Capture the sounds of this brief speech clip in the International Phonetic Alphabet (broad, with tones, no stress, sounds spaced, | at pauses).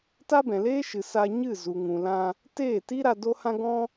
t a˦ b ɛ̃˨ l eː˦ ʃ ɨ˨ s a˧ ɲ ɨ˦˨ z u˨ ŋ ũ˨ l ã˧ | t eː˦˨ t i˦ ɾ a˧ d o˦ h ã˦ ɡ ɔ̃˦